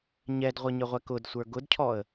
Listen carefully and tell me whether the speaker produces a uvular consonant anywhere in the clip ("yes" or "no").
yes